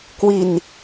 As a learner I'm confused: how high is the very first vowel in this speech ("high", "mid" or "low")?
high